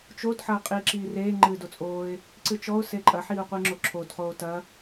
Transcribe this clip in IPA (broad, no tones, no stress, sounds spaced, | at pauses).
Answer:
t͡ʃ o d ħ ɐː qʼ iː ǁ iː r eː ŋ͡ǃ ɨː d o t͡sʼ oː ɪ̯ | ǀ ɨ t͡ʃ ɔ ʊ̯ s e ǃʼ ɐ ħ iː ʊ̯ qʷ ɨː ŋ͡ǁ o ǁʰ o d χ oː t ɐ